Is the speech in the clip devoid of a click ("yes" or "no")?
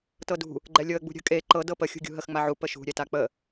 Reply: no